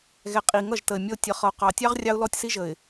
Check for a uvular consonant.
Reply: present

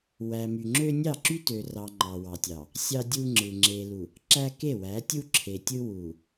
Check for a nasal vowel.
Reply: absent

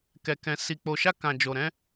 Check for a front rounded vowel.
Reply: absent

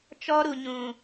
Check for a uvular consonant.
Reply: absent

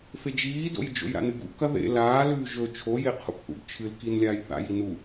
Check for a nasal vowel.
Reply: absent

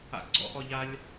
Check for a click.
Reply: present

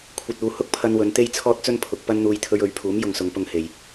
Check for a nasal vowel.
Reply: absent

